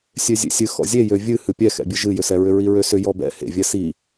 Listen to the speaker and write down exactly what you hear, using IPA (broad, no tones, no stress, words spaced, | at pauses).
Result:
sʲøzʲḛsʲɨ xɔ̰zʲejø vʲɨ hɨpʲɛxɛ̰bʲɨ ʒɨjʏsɛɹʏ ɹiɹøsʏ jɔbɛ̰ hḛvʲɛ si